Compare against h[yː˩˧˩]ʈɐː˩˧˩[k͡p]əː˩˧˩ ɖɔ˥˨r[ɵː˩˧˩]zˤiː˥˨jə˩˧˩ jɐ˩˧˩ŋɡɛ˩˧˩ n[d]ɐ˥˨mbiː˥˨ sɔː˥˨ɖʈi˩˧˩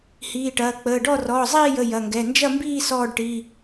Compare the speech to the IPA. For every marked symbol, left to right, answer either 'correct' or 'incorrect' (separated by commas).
incorrect, correct, incorrect, incorrect